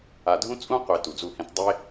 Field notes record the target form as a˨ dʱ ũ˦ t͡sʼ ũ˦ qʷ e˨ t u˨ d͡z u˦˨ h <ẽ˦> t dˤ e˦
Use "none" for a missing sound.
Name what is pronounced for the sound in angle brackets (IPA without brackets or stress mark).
ẽ˦